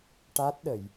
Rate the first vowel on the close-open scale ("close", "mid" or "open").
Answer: open